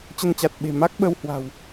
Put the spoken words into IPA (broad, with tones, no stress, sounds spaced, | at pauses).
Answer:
t͡ɕ ə˧ n t͡ɕ a˨˩ t̚ ɓ e̤˨˩ m a˦˥ k̚ ɓ ə˧ w h w a̤˨˩ w